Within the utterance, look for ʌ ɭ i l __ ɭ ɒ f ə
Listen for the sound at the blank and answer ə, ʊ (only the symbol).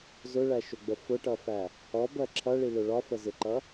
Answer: ʊ